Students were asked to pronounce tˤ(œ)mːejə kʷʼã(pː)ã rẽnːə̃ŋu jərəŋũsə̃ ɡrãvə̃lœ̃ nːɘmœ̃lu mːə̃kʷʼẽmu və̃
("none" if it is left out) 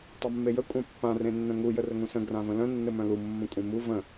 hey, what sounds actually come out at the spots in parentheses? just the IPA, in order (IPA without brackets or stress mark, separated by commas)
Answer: œ, pː